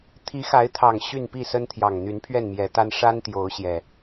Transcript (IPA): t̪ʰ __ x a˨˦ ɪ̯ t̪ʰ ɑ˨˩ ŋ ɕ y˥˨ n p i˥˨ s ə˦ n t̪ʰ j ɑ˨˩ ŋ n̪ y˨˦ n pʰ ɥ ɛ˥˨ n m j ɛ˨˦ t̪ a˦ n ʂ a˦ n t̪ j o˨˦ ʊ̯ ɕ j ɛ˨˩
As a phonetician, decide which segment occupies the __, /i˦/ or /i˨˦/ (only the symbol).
i˨˦